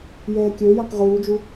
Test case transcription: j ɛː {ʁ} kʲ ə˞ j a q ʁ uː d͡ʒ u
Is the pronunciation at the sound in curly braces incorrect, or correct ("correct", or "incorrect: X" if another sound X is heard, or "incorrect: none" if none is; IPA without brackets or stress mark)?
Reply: incorrect: none